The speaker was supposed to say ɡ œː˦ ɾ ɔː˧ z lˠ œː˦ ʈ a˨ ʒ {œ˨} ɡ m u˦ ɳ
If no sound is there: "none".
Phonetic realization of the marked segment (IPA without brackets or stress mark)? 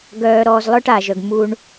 œ˨